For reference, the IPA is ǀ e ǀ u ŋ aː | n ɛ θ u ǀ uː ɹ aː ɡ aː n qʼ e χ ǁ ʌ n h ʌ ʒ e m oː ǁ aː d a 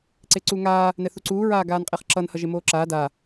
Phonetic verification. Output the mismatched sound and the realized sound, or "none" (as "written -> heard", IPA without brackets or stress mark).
none